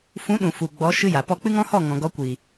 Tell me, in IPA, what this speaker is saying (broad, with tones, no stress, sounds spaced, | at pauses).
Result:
f ũ˨˦ ɗ ũ˨ f u˨ ɡ͡b ɔ˨˦ ʃ ɨ˧ j a˨ p ɔ˧ k͡p ɨ˦ ŋ ɔ̃˦ h ɔ˦˨ ŋ ɔ̃˨ ɡ ɔ˧ kʷ i˨